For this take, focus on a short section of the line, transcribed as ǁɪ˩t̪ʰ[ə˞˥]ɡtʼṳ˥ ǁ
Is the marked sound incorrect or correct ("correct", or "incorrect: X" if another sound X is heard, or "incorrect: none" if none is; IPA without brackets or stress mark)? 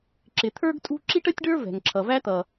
correct